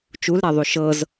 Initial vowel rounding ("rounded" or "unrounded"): rounded